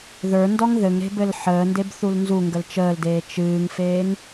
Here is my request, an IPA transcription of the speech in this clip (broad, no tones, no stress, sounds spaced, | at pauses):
ð ə˞ n d ɔ ŋ ð ɘ ŋ ɾ e̤ b ɘ l ħ əː n d e b θ u l n z u ŋ ɡ ə l t͡ʃ əː l d eː t͡ʃ ɨː ŋ f eː ŋ